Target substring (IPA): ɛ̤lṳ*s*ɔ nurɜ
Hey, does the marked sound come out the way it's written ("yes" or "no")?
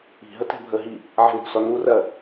yes